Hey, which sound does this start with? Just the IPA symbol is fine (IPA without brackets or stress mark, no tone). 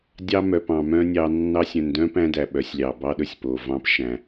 dʲ